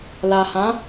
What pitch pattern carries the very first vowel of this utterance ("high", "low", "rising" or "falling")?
low